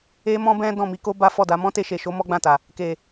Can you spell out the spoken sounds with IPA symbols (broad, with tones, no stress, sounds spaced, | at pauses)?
e˦ m ɔ̃˦ b ɛ̃˦ d ɔ̃˦˨ m i˨˦ k o˦ b a˦ f ɔ˦˨ d a˨˦ m ɔ̃˦ t e˧ ʃ e˨ ʃ o˨˦ m ɔ˦ ɡ͡b ã˦˨ t a˨ | k e˨